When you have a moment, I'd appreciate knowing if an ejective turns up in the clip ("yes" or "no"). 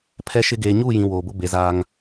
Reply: no